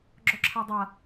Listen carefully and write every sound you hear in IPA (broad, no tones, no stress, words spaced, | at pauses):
ɡ͡ǁɔǁʰadˤɐ